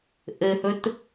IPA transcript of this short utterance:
ʔ ɘ h ɵ t

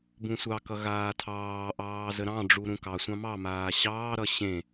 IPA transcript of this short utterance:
b ũ sʷ ɑ k ʌ ɣ aː tʰ ɑː ʔ ɑː z ə ɾ ɑ̃ ɖ͡ʐ u ɾ ũ k ɑ sʷ ɑ̃ m ɑ m aː ɕ ɑː ɾ ʌ ɕ ẽ

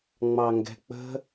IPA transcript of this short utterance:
ŋ͡m ɑ ŋ ɡ ɛ̤ k͡p ə̤

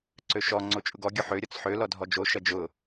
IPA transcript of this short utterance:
ǀ ø ʃ ɔ ŋ͡ǀ o t͡ʃʼ ʊ ɡ ɔ ɡʲ ʊ ħ ø ɾʲ ɔ t͡s ħ ø l ɔ dʱ ɔ d͡ʒ o ʃ ɐ d͡ʒ ʊ

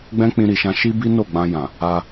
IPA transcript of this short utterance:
ɡ͡b ɛ̃˦ k͡p ĩ˧ ɾ i˨ ʃ ã˧ ʃ i˦ b i˦ n o˦˨ ɡ͡b ã˧ j ã˨ | a˧

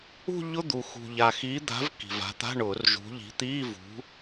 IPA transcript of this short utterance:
ṳ˥˧ ʎ ʊ˧˥˧ d̪ u˨˩ x ṳ˨˩ ʎ a˨˩ x i˨˦ d̪ a̤˨˦ v k i̤˨˩ v a̤˨˦ t̪ a̤˧˥˧ ɳ ʊː˨˩˦ r ʒ ṳ˨˦ ʎ i̤˨˦ t̪ iː˧˥˧ v ṳ˨˦

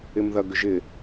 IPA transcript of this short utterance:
ɪ m ð ɐ ɡ ʏ ʒ ɪ

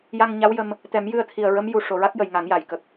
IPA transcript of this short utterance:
j a˧ ŋ ɲ a˧˥ w j ə˧ m | t̪ ɛ˨˩˦ m j ɨ˧ ə̯ t̪ʰ i˨˩ ə̯ ɹ ə˧˥ m j u˨˩ ʂ o˨˩˨ ɹ a˦˥ k̚ j ə˨˩˨ j ŋ a˨˩˦ ŋ j a˨˩˨ j k ə˨˩ k̚

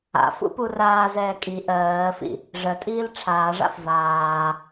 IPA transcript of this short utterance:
a̰ f ṵ p u r aː z ɛː kʼ i ʔ ɜː f ḭ | ʐ ɜ tʼ iː l ʈ͡ʂʰ aː ʐ a̰ f v aː

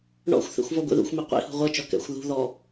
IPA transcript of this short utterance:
ɳ ɔ̰ xʷ θ ḛ xʷ v ɔ ɡʷ ḛ ð ṵ xʷ m i qʷ ḭ h ṳ ʁʷ ɤ t͡ʃ ɔ k ɛ̰ xʷ ð ṳ ð ɔ

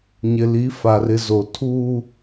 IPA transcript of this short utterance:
ɲ ɪ˨ l i˨˦ f a˨ r ɪ˨ z o˨ tʰ uː˦

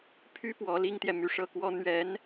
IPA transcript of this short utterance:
pʰ y˥ p w ɔ˧˥ l i˥ ŋ t̪ j ɛ˨ m y˥˧ ʂ ɤ˥˩ k w ɔ˥ n̪ ɥ ɛ˧˥ n

